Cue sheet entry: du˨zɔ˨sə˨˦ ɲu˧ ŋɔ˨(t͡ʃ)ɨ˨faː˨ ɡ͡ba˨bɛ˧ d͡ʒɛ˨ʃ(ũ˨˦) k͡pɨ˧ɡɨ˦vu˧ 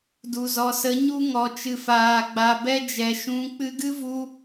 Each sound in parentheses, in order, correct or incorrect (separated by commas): correct, correct